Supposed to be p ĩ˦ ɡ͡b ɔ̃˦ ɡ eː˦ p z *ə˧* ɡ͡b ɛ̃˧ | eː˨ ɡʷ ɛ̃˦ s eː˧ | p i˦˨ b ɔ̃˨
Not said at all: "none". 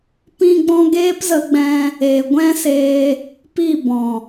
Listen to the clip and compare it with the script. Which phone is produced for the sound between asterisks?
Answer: ə˧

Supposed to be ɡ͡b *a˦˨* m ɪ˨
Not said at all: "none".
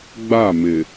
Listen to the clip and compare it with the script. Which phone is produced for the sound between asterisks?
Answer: a˦˨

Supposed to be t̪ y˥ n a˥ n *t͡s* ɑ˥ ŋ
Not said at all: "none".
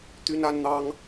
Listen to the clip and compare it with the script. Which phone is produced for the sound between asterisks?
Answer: n̪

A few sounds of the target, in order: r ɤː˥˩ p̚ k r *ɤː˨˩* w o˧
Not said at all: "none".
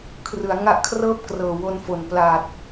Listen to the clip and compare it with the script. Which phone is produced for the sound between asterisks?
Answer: ɤː˨˩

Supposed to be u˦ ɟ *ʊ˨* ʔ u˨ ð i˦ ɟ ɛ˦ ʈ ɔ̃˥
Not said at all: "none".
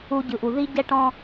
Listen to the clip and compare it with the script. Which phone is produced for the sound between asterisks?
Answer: ɯ˨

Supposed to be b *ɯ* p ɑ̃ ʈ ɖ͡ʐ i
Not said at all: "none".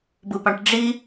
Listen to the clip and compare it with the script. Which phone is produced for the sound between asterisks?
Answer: ɯ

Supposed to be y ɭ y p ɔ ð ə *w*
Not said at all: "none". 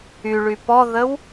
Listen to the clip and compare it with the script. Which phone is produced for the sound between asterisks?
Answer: w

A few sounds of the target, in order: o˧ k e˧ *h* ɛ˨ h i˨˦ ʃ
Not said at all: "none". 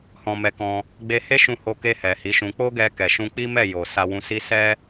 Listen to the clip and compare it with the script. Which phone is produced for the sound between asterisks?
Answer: h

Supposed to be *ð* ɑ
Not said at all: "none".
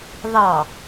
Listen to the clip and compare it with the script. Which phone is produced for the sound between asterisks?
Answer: ð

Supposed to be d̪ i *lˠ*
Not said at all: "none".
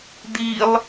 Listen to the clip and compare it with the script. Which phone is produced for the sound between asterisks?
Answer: lˠ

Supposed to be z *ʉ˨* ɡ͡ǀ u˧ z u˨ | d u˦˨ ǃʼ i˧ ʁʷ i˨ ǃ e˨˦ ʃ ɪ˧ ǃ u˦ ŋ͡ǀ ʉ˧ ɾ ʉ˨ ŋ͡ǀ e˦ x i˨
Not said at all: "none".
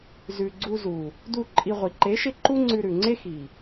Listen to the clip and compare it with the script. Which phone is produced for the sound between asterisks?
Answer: ʉ˨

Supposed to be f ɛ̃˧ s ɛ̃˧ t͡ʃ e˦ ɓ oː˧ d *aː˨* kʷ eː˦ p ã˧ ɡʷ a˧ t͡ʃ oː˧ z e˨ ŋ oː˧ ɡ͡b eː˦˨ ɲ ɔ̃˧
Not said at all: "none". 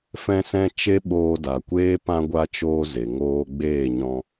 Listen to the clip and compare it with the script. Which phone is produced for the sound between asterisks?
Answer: a˨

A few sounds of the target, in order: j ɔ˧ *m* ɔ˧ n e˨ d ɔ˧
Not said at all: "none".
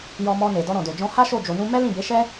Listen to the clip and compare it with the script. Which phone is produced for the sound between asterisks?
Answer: m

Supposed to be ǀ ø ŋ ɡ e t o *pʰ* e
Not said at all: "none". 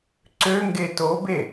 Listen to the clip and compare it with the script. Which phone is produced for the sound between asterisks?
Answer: b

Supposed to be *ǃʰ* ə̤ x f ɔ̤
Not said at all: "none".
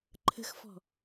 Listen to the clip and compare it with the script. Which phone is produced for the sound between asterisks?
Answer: ǃʰ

